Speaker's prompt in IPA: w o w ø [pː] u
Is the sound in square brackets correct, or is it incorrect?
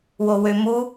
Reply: incorrect